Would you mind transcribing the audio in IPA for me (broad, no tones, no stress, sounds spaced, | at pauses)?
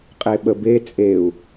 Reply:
qʼ e ɓ ə b e t͡sʼ e u̯